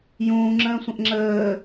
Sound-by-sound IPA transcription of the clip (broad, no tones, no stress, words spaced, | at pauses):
jũːŋ͡ǁə̃ːsʷə̃ʔ ŋ͡ǁəː